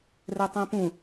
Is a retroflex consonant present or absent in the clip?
absent